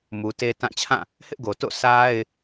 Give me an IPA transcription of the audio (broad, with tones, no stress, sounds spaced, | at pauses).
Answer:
m u˨ t e˦ t ã˦˨ t͡ɕʰ ã˦˨ | h ɪ˦ ʔ ɡ o˨ t o̰˦˨ s a˦ ɪ̯